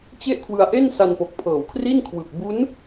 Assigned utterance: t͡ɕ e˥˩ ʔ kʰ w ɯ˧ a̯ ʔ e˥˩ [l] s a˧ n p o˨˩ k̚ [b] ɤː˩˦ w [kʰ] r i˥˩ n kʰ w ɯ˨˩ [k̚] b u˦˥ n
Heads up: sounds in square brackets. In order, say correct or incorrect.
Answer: incorrect: n, incorrect: pʰ, correct, correct

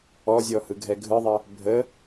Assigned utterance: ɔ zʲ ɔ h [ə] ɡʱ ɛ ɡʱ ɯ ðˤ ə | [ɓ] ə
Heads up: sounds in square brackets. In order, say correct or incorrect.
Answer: incorrect: ɯ, incorrect: bʱ

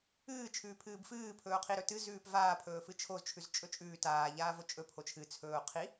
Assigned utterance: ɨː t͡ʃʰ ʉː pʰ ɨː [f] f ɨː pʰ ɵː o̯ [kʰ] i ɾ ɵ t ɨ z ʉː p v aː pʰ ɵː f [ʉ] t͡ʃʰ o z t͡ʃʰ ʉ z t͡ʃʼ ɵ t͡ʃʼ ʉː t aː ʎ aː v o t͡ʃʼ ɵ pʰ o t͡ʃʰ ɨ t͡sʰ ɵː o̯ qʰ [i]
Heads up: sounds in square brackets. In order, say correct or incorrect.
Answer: incorrect: b, incorrect: qʰ, incorrect: ɨ, correct

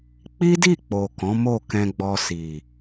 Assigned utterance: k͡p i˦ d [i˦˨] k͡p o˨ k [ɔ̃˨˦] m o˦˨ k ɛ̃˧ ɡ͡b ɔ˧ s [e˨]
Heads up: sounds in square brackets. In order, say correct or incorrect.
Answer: correct, correct, incorrect: i˨

